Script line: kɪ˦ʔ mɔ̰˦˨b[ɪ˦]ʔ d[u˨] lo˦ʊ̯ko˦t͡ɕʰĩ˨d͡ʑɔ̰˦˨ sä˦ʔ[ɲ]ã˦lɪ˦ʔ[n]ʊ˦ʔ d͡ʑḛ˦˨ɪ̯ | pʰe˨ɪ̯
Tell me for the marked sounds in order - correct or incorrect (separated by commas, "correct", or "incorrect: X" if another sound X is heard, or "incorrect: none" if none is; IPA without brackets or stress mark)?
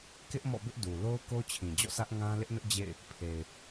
correct, correct, incorrect: ŋ, correct